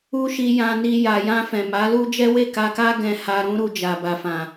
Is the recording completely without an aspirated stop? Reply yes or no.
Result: yes